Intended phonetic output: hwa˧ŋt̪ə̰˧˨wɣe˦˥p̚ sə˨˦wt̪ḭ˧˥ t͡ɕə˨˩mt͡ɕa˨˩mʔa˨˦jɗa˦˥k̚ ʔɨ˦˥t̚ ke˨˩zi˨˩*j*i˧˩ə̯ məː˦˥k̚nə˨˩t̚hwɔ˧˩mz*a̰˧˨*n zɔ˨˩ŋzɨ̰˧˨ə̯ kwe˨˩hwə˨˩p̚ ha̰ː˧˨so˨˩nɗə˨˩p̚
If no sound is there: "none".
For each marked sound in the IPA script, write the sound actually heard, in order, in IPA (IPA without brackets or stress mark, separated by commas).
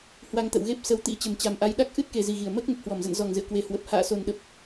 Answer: ɣ, ə̰˧˨